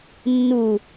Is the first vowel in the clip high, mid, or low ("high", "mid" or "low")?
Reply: high